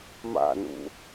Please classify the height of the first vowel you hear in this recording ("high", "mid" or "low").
low